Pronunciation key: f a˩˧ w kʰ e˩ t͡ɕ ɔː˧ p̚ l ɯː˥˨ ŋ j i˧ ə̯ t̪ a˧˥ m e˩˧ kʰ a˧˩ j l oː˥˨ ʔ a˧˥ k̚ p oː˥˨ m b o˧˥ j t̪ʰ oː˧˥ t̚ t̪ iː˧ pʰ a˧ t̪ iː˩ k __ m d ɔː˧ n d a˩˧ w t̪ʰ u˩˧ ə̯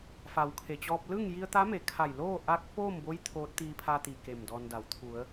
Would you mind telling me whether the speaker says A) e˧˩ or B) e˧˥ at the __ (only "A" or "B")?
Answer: A